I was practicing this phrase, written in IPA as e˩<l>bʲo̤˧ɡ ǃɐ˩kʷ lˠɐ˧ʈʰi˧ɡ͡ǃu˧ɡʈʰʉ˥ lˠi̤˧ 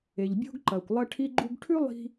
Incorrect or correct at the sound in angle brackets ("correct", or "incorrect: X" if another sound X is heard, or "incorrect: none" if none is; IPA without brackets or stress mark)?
incorrect: ʎ